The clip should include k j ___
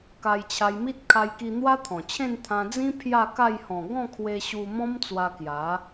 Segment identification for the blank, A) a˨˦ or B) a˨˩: A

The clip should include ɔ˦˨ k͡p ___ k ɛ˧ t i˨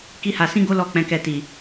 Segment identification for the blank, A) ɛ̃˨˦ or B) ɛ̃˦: A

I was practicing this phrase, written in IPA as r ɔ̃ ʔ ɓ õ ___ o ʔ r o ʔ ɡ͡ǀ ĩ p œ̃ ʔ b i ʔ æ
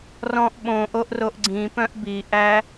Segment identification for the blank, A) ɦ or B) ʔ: B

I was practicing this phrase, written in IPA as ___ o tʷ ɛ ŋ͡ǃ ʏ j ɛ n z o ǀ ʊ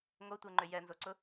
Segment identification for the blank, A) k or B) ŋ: B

